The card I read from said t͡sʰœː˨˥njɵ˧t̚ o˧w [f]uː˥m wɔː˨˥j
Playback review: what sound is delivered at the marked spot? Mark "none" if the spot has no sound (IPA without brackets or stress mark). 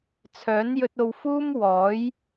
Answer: f